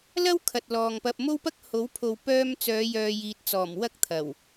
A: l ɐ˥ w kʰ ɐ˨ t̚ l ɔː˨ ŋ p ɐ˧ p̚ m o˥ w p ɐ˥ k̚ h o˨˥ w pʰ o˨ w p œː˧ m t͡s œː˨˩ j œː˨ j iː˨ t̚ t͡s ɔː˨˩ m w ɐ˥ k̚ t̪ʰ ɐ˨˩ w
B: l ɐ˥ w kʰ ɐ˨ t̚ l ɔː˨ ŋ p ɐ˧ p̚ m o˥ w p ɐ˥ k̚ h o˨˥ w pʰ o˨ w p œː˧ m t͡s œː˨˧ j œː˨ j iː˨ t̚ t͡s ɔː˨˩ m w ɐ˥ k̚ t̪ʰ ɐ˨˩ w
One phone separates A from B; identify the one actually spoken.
B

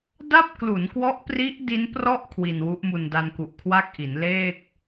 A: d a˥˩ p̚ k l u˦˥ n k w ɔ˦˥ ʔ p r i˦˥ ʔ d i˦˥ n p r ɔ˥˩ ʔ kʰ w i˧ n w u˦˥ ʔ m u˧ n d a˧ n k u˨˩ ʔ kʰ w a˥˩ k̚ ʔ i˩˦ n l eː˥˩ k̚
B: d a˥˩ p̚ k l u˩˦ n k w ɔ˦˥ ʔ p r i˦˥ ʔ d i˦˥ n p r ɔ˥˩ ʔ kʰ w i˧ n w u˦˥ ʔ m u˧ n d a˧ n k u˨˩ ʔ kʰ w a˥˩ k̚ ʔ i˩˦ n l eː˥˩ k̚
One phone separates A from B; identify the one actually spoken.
B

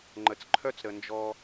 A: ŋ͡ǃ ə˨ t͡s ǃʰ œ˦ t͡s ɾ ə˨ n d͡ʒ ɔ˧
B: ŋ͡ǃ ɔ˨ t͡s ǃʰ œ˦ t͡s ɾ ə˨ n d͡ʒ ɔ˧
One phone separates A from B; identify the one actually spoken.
A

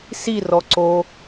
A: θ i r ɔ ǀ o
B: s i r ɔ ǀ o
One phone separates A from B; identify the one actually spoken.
B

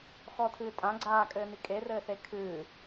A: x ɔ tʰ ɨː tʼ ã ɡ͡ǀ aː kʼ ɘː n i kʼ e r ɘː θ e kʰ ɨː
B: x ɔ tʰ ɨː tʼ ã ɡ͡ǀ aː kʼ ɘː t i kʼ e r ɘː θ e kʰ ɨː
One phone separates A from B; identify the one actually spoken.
A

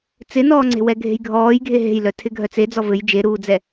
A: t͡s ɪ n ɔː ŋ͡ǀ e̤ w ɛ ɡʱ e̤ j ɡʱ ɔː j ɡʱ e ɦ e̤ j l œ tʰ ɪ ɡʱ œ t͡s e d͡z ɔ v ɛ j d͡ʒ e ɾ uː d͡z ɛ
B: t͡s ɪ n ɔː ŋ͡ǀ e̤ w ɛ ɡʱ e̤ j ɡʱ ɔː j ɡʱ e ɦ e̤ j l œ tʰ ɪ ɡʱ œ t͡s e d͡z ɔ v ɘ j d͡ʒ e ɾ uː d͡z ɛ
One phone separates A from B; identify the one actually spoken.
B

